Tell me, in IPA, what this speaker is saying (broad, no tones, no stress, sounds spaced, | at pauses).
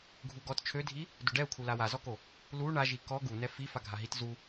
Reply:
ɡʱ u ɡ ɔ t t͡ʃʰ ø dʱ i | d u ɖ ɛ u̯ kʰ u l a w a z ɔ k o | l u ɳ a ʒ i k ɔ ɡ u n ɛ f i f a ɡʱ a ɦ i t z u